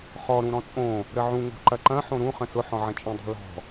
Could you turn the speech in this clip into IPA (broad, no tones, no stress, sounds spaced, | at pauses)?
χ ɔ ɾ ũ ɾ ɔ̃ t͡sʼ õ | ɾ ə ʕ ũ ŋ o̤ ǃ ɐ ǃ ɐ̃ ħ õ ɾ ũ χ ə̃ s ʊ ħ ɔ̃ ʕ ɐ̃ t͡ʃʼ ə̃ dˤ o̤ l ɔ̤